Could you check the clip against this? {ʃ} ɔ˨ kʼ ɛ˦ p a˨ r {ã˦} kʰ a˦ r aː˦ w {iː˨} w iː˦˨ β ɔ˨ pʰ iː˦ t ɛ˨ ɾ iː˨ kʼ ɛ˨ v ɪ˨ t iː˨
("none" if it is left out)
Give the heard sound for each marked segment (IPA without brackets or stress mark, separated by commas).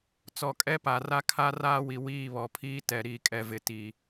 t͡s, a˦, i˨